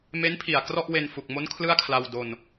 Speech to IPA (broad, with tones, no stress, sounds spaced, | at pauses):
m e˦˥ n pʰ i˨˩ a̯ k r ɔ˥˩ ʔ w e˧ n f u˨˩ k̚ m o˦˥ n kʰ l ɯ˥˩ a̯ kʰ l a˧ w d o˧ n